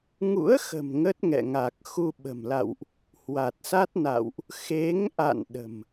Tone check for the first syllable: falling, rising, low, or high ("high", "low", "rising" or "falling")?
rising